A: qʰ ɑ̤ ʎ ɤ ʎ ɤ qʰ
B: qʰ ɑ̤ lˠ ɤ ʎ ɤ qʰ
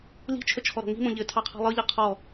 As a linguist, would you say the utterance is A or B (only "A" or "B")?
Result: B